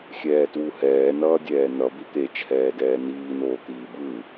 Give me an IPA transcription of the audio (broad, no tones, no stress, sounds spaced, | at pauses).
xʲ ɛː t w u h ɛː n ʌː dʲ ɛː n ʌ b i t̪ e t͡ʃʰ ɛː d ɛː n iː n oː t̪ iː b ɯ